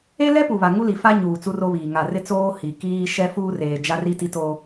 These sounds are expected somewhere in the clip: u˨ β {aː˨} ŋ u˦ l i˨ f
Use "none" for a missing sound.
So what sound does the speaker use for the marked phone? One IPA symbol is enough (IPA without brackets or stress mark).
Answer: a˨